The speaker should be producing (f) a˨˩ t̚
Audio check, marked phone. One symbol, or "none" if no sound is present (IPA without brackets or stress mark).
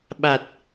ɓ